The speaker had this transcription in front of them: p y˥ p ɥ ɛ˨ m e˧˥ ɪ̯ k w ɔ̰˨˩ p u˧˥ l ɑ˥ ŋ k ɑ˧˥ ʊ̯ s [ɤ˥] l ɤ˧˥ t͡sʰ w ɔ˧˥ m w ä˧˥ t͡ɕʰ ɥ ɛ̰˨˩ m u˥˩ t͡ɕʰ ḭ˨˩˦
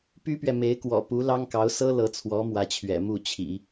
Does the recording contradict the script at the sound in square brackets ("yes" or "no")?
no